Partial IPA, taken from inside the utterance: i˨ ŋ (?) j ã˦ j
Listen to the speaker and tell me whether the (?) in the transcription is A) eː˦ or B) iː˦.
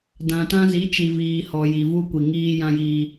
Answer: B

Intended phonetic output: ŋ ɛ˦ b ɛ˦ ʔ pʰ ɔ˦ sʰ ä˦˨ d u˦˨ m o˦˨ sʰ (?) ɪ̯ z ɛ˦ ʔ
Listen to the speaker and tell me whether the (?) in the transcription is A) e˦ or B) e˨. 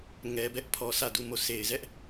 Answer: B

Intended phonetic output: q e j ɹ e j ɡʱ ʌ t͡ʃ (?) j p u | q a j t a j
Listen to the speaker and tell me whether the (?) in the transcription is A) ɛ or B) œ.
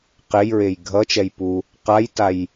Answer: A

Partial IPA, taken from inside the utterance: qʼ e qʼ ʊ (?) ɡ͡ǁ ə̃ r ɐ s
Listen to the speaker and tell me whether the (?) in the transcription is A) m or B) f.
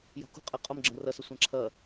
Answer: A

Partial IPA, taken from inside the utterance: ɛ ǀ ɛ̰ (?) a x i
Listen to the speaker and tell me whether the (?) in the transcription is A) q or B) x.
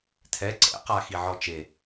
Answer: A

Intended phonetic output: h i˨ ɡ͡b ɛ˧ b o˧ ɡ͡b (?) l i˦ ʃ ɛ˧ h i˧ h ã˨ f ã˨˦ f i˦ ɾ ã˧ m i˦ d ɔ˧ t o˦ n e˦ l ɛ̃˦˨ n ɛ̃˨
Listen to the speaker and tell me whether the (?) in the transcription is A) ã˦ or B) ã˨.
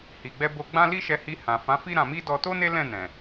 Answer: A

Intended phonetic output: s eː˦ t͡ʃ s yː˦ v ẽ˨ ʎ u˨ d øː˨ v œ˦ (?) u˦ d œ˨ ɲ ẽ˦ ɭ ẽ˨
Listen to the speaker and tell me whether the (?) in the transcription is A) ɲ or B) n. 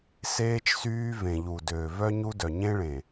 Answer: A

